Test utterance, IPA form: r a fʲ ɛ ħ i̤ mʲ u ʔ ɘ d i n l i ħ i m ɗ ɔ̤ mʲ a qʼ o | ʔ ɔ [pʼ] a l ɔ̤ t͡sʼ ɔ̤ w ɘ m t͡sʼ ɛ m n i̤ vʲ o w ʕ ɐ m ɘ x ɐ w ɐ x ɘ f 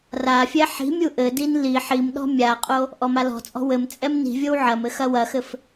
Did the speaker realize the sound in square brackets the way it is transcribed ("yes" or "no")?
no